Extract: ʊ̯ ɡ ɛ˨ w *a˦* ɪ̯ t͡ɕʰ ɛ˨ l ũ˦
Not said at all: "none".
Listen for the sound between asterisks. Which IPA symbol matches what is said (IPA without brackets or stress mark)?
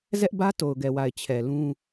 a˨